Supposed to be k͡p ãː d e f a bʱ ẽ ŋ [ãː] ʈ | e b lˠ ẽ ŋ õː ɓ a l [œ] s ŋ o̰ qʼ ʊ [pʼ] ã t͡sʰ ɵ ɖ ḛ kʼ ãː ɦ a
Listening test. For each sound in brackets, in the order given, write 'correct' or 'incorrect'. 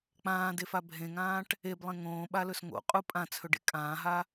correct, incorrect, correct

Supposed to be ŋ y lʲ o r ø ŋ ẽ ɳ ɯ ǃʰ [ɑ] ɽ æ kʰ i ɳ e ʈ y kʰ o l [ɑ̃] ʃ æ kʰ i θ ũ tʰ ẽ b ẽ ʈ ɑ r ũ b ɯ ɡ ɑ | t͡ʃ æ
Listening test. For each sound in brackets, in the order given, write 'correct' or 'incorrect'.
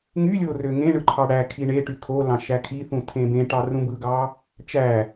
correct, correct

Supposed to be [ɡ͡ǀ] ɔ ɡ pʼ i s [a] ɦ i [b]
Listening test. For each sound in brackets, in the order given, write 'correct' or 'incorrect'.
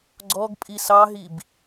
correct, incorrect, correct

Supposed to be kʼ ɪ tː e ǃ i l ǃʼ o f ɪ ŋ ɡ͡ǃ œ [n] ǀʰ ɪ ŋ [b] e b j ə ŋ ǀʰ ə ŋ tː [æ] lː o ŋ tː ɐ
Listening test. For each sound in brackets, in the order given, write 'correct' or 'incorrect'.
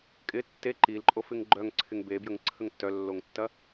incorrect, correct, incorrect

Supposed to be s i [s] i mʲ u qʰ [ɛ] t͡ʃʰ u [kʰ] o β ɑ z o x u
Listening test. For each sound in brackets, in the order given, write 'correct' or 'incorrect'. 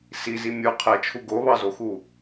incorrect, correct, incorrect

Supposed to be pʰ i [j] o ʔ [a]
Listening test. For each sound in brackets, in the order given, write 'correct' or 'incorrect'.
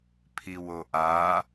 incorrect, correct

